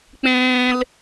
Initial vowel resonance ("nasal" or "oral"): nasal